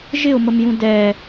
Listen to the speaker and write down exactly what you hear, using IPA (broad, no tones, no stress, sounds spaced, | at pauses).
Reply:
ʒ ɪ ʊ̯ m ə m j ũ d ɛ